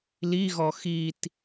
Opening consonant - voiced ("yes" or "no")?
yes